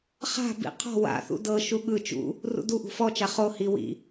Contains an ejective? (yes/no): no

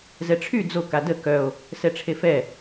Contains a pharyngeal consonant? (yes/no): no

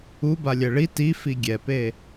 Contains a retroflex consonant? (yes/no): yes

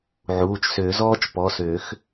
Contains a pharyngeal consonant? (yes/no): yes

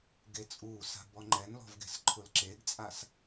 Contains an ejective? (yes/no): yes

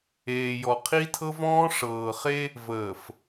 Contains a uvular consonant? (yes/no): yes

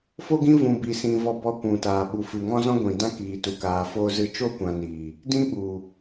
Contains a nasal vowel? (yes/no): yes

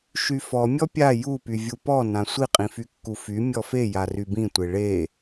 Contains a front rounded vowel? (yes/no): yes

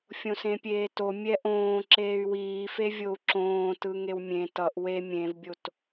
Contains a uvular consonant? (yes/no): no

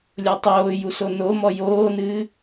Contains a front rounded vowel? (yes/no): no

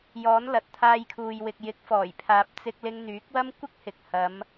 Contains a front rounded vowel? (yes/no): yes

